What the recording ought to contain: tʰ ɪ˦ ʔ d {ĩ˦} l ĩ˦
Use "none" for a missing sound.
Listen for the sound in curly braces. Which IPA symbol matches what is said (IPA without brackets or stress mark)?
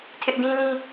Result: ĩ˦